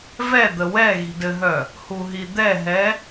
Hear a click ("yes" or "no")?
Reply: no